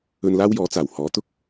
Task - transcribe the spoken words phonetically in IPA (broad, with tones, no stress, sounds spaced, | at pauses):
ɵ˧ n l aː˥ w j ɔː˨˥ t͡s aː˨˩ w h ɔː˨˥ t̪ ʊ˥ k̚